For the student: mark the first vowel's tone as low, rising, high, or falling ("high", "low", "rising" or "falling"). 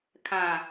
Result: low